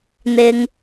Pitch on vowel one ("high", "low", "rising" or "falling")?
low